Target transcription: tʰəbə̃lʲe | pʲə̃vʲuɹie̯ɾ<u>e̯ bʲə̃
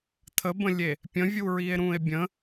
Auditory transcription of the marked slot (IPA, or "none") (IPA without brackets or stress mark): ũ